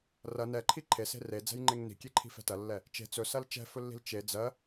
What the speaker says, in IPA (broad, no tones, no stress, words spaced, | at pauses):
rɐ nɛǃʰi ǃʰese̤ red͡zɛ̤jŋ͡ǃeŋ ni̤kʲeǃʰi̤fɛ̤ tɐlːɛ | t͡ʃe̤ t͡sɵsɐl t͡ʃɛ̤fɵlːi̤l t͡ʃe d͡zɜ